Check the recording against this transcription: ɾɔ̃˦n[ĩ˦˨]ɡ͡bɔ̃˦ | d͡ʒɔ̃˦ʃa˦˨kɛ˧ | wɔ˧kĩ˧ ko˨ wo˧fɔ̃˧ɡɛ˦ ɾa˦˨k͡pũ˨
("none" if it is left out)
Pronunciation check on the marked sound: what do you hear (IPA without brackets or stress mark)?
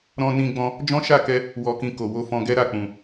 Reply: ĩ˦